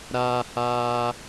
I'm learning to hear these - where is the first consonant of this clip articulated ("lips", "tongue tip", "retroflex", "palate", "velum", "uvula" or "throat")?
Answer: tongue tip